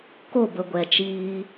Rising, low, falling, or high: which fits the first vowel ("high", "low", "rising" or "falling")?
falling